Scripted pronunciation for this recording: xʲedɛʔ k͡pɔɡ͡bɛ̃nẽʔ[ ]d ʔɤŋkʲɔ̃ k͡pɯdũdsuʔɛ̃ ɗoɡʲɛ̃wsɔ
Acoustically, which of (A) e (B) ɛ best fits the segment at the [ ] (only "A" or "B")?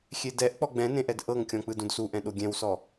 B